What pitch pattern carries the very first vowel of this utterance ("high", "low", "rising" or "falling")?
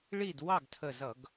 falling